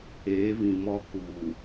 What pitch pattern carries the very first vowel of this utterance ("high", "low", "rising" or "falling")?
rising